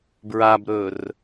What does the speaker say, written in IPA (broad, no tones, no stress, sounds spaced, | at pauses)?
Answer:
b ɹ a b ɾ ɵ r